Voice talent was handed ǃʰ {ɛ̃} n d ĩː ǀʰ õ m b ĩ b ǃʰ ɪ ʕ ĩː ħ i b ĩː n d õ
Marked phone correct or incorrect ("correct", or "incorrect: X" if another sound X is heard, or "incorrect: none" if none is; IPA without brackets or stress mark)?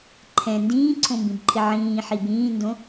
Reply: correct